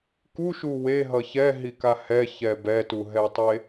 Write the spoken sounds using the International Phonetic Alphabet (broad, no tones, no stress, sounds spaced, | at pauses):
k u ʃ u w e ɦ ʌ ç ɛ ɦ i k a h ɛ ç ɛ b ɛ t u ɦ ɛ tˤ e